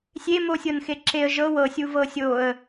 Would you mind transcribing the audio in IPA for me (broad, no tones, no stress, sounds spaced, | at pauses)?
sʲ e m o sʲ ɤ n x e ǁ e ə̯ ʒ ɤ w ɤ sʲ u v ɤ sʲ o ə̯